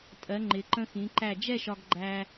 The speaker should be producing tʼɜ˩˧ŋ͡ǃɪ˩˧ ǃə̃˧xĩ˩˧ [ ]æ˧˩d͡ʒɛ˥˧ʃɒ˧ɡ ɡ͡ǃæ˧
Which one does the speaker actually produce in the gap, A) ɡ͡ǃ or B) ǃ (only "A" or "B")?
B